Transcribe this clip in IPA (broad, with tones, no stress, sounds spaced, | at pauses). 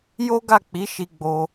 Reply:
j o˦ ɡ a˦˨ k͡p i˨˦ ʃ i˧ ɡ͡b o˧